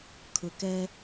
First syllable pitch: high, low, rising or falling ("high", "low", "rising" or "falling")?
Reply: low